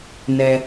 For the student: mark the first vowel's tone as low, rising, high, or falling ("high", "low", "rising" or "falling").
low